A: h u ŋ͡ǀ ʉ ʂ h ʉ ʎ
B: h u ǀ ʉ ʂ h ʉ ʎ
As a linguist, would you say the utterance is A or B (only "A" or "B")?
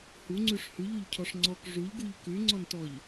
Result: A